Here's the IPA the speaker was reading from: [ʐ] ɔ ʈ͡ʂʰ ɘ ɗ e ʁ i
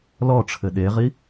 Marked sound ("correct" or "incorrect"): incorrect